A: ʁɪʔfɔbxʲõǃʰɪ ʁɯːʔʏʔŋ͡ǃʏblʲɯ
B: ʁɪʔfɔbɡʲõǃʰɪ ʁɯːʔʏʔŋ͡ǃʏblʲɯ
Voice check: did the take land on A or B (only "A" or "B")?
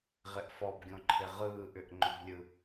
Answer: B